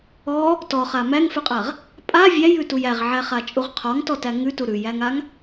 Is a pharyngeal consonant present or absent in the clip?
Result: present